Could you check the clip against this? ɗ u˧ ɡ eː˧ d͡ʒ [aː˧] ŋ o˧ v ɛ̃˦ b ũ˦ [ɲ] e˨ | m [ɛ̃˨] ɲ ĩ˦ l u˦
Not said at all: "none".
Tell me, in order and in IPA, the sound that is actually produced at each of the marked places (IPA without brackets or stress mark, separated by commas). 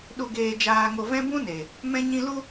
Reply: aː˧, n, ɛ̃˦